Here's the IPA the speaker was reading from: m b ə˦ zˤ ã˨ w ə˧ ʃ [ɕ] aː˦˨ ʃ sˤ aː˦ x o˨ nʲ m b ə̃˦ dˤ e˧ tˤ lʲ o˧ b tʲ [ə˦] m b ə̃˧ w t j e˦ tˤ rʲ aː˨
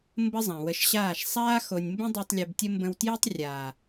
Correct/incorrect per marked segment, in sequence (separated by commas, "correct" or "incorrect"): correct, correct